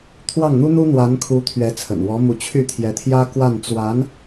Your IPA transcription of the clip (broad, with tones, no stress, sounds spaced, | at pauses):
t̪ʰ w ɑ˥˩ ŋ n̪ u˥ n̪ u˥ n̪ w a˧˥ n kʰ u˧˥ t̪ʰ ɥ ɛ˧˥ t͡sʰ ə̰˨˩ n w ɔ˧˥ m u˧˥ t͡ɕʰ y˥˩ t̪ʰ j ɛ˧˥ t̪ʰ j ä˥ k w a˥˩ n t͡s w a˧˥ n